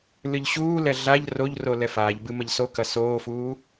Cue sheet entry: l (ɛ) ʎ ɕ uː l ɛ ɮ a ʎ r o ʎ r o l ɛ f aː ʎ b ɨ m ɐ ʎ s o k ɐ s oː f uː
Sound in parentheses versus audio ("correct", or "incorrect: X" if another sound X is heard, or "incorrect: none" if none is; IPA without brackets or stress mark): incorrect: ɨ